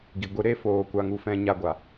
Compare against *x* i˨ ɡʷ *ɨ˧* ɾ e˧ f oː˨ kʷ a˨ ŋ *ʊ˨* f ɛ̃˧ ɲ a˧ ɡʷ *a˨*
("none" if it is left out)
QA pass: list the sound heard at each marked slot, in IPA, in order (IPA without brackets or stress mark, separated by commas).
ɡ, ɨ˧, u˨, a˨